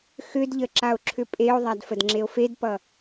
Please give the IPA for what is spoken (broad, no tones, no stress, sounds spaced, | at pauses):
x ʏ d ʎ ə ǁ a o̯ ǁʰ ʏ pʼ e o̯ ðˤ a d f ə d ŋ͡ǁ e o̯ f e d p ʌ